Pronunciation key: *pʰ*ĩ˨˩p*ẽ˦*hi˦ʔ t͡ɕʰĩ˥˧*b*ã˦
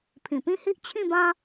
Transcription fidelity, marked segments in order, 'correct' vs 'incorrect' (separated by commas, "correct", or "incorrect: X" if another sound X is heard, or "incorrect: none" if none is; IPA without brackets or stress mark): correct, incorrect: ĩ˦, correct